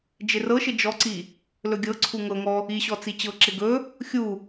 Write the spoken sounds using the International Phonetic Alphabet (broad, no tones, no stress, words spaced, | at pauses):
d͡ʒɪrɤʃɪ d͡ʒɔǀi | lɵɡʲɤǀʰu ŋɤŋɔ | iɕɔ t͡sit͡ɕɤǁɪ ɡɵ | xʲu